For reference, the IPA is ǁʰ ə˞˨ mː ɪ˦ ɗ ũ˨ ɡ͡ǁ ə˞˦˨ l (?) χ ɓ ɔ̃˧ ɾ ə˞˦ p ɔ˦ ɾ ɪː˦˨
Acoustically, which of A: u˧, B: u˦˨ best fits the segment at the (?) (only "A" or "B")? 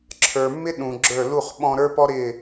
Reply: B